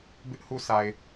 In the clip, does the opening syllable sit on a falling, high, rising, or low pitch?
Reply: high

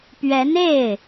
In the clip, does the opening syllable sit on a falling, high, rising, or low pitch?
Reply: rising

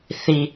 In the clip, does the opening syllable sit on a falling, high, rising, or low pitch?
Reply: low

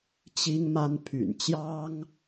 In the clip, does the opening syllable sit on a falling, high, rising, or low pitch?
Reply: high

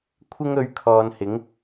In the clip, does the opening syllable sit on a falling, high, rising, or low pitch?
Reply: high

